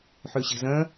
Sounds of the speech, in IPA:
ħ ø ɕ e̤ z ɐ̃

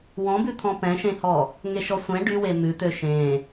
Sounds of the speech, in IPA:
w ɔ̃ b ʉ t̪ʰ ɔ̃ p ɛ̃ ʃ ẽ h ɔ | ŋ e ʃ ɔ sʷ ɛ̃ ɖ y w e m ʉ t̪ ø ʃ ẽ

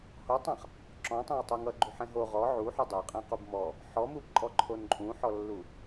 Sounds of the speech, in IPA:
h o tˤ ã χ | ǁ ɔ̃ tˤ ɛ̃ w tˤ u ŋ ʌ ɡ͡ǃ u ħ ɛ̃ ɦ o ʁ ɔ ʕ u ħ u dˤ ɛ qʼ ɛ̃ q u b m ɔ | ħ ɔ m u b ǃʼ ɔ ǃʰ o n ǃʼ ũ ħ ɔ lː u

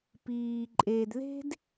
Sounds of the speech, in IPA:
p iː˨ ǃʼ e˨ d ð e̤˦ d

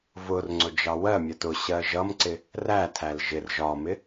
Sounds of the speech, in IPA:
v ʊ r ŋ͡ǀ ʊ d͡ʒ ɑ w ɜ mʲ ɜ t ʊ ɕ ɜ ʒ ʌ m ǀ ɪ | r æ tʰ æ l ʒ ɪ r ʒ ɒ m ɪ

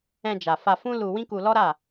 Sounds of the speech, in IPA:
ɛ̃˧ d͡ʒ a˨ f a˧ f ũ˦ l u˧ w ĩ˦ k u˧ l ɔ˦ ɾ a˦˨

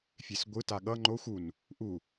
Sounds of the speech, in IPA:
fʲ e s ɡʷ ɯ t a ɠ ʌ ŋ͡ǃ o xʷ u n | ʔ u

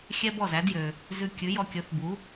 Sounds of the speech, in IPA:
xʲ ɛ˥ b ɔ˥˩ z æ˩˥ d j ø˩ | z ʉ˧ kʲ ʉ˩˥ j ɔ˧ kʲ ɵ˩˥ θ b u˩˥

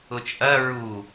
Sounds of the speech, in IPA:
ʊ t͡ʃʼ ɐ ɹ u

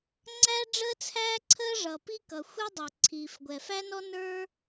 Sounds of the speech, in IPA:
ŋ͡ǀ æ˥ ɖ͡ʐ əː˥ t͡sʰ æː˥ ǀʰ əː˥ ʐ ʌ˩ p i˥ k ʌ˩ xʷ ɛ˥ dˤ ə˞˩ ǀʰ iː˩ f ɡʷ ɛ˩ f æ˥ n ɔ˥ n ə˞˥

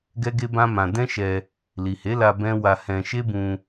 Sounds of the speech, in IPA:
ɡ ɛ˦ ɡ e˦ b ã˦ m ã˧ d ɛ̃˦ ʃ ɛ˧ | l i˨ h e˨˦ l a˧ b ɛ̃˦ w a˧ h ɛ̃˧ ʃ e˦ b ũ˧

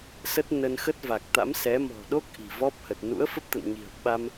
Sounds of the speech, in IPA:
s ə˦˥ t̚ n ə˧ n x ə˦˥ t̚ v a˨˩ k̚ t̪ a̰˧˥ m s ɛ˨˦ m ɔ̤˨˩ ɗ o˦˥ k̚ ʔ i̤˨˩ v ɔ˦˥ p̚ h ə˨˩ t̚ n ṵ˧˥ ə̯ f ə˦˥ p̚ t̪ ə̰˧˨ n ɲ i̤˨˩ ə̯ ɓ a˧ m

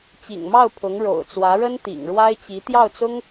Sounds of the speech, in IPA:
t͡ɕ ḭ˨˩ ŋ m ɑ˥˩ ʊ̯ pʰ ʊ˧˥ ŋ ɻ o̰˨˩ ʊ̯ t͡s w ä˧˥ ɻ ə˥ n t̪ ḭ˨˩ ŋ ɻ w a˥ ɪ̯ t͡ɕ i˧˥ t̪ j ɑ˥˩ ʊ̯ t͡s ʊ˥ ŋ

